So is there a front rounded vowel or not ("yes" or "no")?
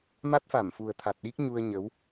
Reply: no